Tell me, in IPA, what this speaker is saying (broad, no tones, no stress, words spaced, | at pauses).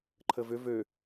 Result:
ǃʰəvʏ vø